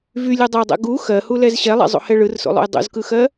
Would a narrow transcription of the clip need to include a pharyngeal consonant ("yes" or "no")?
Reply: no